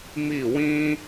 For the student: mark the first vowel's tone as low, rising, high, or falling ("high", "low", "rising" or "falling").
falling